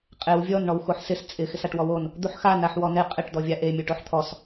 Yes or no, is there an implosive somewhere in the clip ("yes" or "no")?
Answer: no